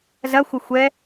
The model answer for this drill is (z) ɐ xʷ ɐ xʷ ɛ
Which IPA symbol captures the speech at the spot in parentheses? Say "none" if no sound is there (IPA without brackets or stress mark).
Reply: z